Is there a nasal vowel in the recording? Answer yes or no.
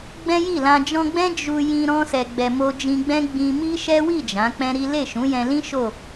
yes